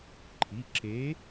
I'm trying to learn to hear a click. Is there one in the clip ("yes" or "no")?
yes